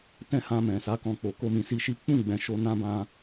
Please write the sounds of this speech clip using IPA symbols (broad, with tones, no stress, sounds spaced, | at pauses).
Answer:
t ɛ̃˦ h ã˧ m ɛ̃˨ s a˨˦ k ɔ̃˧ k͡p o˨ k o˧ m ĩ˨ s i˧ ʃ i˦ k͡p ũ˦˨ ɡ͡b ɛ̃˨ ʃ o˧ n ã˦ b ã˧